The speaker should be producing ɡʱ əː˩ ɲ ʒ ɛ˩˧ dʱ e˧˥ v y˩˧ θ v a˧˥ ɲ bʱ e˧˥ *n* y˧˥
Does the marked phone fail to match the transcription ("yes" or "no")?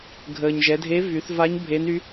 no